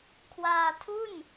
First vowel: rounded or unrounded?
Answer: unrounded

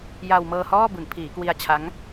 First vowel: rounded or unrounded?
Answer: unrounded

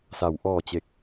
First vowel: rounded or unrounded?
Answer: unrounded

